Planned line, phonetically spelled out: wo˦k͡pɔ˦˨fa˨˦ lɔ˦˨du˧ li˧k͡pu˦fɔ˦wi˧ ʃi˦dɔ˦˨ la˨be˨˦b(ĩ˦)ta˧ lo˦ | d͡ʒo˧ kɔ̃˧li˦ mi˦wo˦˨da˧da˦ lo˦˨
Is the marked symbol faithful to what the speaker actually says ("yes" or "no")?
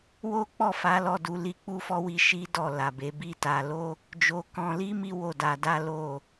no